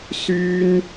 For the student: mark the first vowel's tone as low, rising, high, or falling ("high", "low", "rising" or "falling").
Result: high